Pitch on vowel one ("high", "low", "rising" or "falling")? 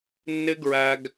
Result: high